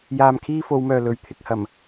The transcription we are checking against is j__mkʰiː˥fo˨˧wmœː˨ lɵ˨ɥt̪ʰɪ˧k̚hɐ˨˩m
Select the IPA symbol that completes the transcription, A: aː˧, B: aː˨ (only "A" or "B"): A